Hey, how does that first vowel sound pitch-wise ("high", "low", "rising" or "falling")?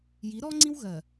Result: rising